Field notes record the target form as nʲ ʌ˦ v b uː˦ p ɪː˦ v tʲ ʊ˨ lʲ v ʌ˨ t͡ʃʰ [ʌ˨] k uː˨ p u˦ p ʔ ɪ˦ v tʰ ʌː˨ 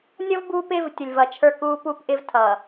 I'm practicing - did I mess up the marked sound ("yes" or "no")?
yes